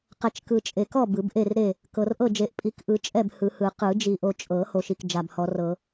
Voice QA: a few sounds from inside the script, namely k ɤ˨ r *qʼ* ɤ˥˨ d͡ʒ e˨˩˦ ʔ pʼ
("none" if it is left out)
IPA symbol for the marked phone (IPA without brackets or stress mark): ʔ